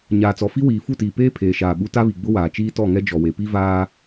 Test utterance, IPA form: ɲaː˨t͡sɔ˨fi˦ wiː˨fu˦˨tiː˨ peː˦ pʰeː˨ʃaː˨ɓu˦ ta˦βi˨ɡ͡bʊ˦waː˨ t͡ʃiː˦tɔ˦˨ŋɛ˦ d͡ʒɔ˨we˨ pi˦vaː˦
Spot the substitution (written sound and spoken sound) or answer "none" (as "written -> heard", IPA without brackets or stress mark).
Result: none